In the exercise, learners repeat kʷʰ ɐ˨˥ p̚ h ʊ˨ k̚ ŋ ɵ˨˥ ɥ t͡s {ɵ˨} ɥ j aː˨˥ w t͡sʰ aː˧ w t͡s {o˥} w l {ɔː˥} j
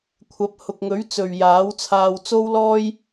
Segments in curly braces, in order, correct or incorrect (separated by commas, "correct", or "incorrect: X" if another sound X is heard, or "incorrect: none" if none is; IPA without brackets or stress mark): correct, correct, correct